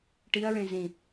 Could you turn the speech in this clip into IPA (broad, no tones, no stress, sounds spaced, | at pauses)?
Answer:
ʈ i ɐ̯ ɹ ẽ z ĩ